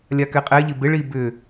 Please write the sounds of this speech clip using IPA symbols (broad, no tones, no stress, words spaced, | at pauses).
lʲakɛqʼɛʎɪ bɪɭi bʏ